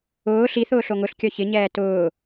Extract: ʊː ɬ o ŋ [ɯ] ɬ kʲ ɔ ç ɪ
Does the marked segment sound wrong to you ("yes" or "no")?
yes